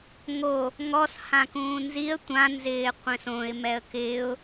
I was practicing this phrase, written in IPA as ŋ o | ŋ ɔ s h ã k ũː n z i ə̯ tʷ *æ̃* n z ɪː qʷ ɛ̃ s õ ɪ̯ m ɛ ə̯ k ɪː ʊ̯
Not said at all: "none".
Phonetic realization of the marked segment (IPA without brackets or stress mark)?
ã